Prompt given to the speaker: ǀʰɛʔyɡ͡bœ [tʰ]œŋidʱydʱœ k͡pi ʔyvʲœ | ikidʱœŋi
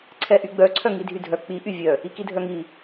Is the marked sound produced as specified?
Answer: no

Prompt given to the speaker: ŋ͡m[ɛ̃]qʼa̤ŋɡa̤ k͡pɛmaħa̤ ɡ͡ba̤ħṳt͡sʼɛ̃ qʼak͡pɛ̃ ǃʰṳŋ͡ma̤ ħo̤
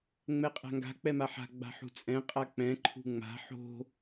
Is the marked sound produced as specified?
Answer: no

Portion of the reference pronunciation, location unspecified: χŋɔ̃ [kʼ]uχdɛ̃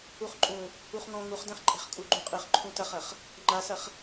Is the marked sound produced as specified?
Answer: no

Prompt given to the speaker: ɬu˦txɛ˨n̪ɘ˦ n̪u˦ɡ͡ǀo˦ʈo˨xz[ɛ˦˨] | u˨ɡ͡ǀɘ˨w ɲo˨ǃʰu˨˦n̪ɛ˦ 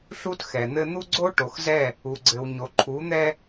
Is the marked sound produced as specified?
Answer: yes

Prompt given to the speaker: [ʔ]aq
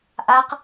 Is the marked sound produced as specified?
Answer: yes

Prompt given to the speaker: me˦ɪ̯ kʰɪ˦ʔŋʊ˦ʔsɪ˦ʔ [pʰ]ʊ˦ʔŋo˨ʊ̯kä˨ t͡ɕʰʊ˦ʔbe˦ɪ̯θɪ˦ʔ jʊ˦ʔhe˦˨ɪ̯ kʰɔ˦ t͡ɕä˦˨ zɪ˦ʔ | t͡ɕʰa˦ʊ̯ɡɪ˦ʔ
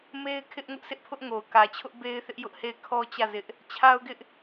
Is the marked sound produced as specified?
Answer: yes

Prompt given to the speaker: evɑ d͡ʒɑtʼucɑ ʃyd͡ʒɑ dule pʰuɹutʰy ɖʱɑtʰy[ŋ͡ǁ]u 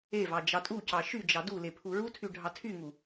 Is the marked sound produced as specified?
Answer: no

